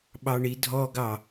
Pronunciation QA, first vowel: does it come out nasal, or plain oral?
oral